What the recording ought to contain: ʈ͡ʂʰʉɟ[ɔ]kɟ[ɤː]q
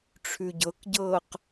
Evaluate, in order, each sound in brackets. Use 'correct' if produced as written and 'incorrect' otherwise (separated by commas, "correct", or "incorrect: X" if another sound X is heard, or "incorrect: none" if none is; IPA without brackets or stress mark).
incorrect: ɤ, correct